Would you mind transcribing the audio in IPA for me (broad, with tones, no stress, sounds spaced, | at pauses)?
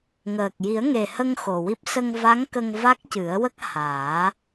ŋ əː˨˩ k̚ j i˨˩˦ ə̯ ŋ e˨˩ h ə˧ ŋ x o˨˩ w i˦˥ p̚ s ə˧ ŋ v a˧˥ ŋ k ə˧ ŋ v a˦˥ k̚ c ɨ˨˩˦ ə̯ w ə˦˥ k̚ h aː˨˩˦